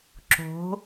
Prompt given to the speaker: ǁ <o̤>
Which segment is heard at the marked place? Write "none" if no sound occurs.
o̤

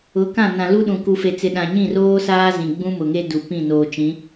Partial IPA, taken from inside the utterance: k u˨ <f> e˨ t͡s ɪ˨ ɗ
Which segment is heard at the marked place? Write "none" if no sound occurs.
f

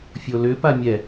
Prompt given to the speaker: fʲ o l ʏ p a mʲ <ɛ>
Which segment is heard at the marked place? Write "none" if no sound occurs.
ɛ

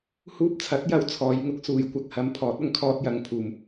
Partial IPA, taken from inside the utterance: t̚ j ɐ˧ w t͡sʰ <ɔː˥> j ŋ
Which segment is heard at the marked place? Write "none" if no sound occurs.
ɔː˨˧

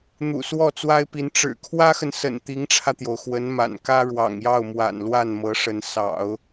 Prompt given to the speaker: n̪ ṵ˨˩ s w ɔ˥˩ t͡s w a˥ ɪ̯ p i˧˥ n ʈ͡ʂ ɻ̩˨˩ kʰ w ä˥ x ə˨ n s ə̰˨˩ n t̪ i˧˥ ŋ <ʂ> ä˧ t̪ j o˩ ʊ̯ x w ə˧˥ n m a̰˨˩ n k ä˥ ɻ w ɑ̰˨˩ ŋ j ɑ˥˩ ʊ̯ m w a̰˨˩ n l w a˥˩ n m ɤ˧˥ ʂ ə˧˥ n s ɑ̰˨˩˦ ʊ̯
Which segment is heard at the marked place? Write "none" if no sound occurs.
ʈ͡ʂʰ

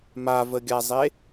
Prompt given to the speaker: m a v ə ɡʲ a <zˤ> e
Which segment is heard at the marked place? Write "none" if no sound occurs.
zˤ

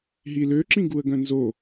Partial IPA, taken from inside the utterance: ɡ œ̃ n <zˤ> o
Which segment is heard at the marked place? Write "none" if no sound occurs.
z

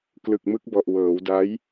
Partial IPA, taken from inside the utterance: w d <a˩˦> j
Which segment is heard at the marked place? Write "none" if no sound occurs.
a˦˥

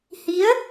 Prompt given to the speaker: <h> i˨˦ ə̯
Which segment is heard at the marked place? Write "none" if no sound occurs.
h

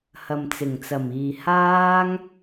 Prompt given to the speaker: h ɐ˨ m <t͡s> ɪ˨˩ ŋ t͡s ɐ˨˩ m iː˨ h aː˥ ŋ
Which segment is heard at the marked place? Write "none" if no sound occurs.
t͡s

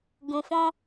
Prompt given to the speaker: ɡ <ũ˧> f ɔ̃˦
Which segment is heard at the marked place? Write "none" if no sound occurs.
ũ˧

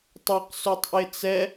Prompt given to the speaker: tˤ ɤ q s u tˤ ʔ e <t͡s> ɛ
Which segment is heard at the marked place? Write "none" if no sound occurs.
t͡s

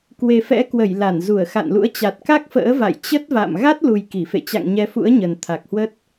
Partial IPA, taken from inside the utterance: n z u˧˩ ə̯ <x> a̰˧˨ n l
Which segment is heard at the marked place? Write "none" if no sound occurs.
x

